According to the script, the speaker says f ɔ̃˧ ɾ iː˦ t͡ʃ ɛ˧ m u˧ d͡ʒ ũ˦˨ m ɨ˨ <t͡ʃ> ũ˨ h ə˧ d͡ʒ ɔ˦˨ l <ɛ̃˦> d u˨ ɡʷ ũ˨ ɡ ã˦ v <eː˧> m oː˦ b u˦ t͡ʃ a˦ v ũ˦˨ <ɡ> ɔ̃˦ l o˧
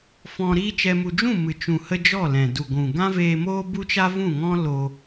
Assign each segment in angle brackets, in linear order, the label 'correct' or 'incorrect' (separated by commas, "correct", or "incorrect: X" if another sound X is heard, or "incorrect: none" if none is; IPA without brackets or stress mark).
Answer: correct, incorrect: ɛ̃˨, correct, incorrect: ŋ